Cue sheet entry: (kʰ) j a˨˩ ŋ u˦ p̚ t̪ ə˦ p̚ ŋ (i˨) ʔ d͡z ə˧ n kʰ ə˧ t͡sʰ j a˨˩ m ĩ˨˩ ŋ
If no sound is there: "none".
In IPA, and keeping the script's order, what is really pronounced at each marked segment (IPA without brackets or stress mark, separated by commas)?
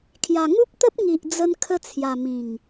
kʰ, i˨